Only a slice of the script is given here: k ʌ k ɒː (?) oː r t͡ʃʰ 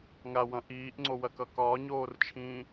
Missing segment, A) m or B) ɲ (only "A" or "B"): B